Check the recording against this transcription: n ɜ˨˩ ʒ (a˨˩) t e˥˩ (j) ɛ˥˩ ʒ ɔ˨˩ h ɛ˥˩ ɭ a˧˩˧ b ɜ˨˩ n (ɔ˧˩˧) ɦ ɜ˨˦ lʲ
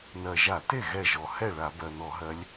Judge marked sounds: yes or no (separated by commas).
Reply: no, no, yes